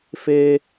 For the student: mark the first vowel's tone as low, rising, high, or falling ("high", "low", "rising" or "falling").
high